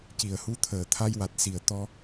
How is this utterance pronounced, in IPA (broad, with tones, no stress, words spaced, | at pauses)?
ci˨˩ə̯hu˧˥t̪ʰəː˨˩ t̪ʰa˧jwa˨˩t̚si˨˩ə̯t̪ɔ˧